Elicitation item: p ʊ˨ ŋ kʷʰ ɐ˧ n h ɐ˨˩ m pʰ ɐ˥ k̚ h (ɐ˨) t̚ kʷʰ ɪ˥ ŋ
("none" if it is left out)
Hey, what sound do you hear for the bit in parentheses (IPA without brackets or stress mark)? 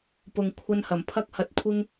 ɐ˧